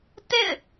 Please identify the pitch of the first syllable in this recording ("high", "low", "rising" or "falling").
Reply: falling